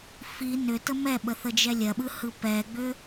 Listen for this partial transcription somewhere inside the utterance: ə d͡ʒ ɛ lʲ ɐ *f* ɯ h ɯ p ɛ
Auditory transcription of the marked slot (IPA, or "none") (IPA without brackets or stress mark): ɓ